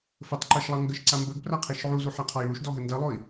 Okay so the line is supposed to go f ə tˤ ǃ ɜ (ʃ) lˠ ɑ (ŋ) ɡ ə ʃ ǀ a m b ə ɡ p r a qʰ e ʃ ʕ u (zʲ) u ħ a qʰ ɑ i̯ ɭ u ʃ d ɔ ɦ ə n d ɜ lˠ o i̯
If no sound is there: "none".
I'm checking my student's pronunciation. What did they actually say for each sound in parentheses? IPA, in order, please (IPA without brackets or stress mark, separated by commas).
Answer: ʃ, ŋ, z